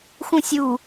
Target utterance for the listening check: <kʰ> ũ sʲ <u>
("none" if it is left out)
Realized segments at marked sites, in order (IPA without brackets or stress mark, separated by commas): x, u